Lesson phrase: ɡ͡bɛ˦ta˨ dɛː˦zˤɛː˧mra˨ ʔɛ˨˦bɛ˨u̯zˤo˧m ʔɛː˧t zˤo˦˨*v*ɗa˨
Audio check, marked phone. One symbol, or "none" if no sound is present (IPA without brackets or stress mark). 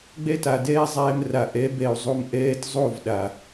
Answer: v